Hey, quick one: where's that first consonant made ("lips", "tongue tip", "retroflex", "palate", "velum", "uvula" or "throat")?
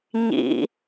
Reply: palate